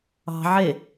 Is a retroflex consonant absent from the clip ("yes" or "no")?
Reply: yes